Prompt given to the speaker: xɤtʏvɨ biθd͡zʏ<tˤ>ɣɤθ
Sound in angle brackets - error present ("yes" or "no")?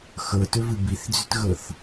yes